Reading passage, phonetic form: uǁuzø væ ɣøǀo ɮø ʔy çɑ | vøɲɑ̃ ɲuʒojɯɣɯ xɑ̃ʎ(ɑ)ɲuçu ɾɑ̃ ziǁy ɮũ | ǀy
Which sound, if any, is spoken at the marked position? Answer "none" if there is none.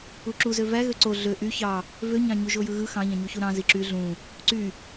ɑ̃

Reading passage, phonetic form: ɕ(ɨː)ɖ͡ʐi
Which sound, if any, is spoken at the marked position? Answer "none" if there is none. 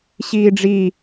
iː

